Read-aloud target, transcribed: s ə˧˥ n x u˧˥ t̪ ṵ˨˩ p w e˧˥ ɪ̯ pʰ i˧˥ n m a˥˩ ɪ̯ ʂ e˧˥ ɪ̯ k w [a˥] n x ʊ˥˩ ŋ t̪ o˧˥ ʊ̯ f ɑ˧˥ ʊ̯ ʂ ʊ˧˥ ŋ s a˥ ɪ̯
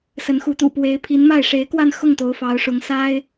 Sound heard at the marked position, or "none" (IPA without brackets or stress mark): a˥˧